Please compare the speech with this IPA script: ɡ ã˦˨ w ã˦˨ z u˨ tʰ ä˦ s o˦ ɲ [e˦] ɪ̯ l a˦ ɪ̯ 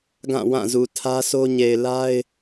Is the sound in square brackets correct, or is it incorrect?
incorrect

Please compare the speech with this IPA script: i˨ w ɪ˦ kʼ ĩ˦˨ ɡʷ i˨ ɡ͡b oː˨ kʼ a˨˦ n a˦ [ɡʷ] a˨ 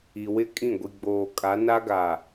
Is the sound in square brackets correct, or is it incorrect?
incorrect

